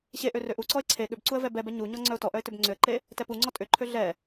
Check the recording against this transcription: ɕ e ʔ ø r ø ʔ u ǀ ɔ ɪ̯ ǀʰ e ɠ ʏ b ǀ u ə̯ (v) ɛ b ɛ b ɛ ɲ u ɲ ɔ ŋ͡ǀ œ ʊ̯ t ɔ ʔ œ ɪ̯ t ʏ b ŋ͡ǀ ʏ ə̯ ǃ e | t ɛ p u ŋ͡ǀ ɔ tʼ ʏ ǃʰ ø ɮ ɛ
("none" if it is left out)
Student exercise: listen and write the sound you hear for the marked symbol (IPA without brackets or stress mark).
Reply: v